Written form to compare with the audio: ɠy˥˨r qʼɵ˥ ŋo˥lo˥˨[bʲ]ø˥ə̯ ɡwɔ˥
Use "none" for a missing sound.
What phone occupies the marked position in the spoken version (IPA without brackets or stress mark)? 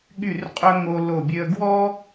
bʲ